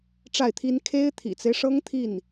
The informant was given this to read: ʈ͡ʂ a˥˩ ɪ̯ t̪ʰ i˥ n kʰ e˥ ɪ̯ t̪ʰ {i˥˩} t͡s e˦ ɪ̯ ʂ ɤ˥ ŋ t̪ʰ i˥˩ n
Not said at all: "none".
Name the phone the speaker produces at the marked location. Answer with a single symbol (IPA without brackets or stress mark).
ḭ˨˩